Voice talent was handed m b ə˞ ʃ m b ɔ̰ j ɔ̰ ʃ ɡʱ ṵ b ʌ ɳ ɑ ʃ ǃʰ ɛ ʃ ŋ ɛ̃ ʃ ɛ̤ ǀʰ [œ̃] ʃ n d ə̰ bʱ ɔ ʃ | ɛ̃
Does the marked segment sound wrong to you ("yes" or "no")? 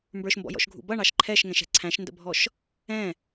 yes